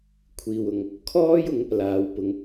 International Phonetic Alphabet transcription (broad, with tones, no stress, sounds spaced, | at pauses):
kʷʰ iː˨ w ʊ˨ ŋ | kʰ ɔː˥ j ʊ˨˥ ŋ | l aː˨˧ w p ʊ˨˧ ŋ